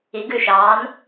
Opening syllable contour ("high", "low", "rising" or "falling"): rising